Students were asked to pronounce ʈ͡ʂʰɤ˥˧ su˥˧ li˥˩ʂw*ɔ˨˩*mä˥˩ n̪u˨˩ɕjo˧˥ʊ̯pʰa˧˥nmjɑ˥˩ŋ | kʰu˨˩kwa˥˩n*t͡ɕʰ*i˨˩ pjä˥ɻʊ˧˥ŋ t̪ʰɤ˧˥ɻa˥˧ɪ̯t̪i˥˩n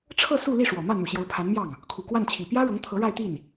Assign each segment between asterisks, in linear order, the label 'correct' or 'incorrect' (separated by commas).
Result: correct, correct